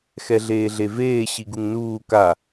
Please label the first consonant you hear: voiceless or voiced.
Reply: voiceless